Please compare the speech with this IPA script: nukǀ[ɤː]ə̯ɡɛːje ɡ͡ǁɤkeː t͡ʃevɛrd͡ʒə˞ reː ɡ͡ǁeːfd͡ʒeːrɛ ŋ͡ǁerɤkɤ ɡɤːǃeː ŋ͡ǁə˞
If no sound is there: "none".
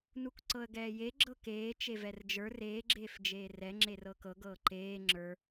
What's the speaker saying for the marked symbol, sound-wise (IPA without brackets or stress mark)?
ɤ